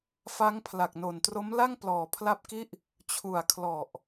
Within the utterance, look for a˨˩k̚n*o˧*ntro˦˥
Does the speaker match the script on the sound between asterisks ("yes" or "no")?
no